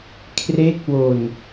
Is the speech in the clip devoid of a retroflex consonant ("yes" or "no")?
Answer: yes